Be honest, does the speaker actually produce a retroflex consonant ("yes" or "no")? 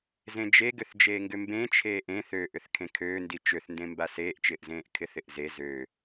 no